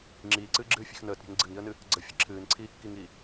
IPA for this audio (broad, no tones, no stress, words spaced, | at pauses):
ŋ͡ǁiːǀɨːɡ͡ǁɨːfʲe̤x nəːtɾʲe̤ŋ ɡ͡ǀɨŋiə̯nɨ | ɡ͡ǀəfʲə ǁʰɨːnǀʰiːkːiŋiː